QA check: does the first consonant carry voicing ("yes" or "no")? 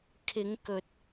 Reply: no